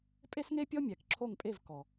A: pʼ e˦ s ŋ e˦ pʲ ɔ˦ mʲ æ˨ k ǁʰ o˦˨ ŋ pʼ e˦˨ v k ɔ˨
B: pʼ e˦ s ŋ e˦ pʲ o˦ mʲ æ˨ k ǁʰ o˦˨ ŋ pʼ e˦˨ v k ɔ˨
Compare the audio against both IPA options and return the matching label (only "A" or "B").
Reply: A